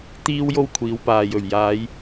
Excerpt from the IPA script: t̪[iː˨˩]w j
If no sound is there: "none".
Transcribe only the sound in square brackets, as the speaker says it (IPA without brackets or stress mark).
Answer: iː˥